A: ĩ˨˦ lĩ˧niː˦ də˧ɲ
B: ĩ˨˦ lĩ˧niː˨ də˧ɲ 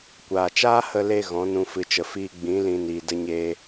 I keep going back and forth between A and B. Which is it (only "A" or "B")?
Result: B